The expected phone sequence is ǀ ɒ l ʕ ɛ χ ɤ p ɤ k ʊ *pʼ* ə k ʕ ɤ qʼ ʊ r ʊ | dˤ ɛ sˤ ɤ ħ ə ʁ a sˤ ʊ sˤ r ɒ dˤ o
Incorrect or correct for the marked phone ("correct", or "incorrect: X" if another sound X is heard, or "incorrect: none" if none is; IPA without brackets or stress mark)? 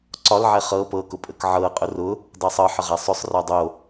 correct